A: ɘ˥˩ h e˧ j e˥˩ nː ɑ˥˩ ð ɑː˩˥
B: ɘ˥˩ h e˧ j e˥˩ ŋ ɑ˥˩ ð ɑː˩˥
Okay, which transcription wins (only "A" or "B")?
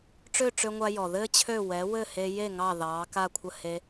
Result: B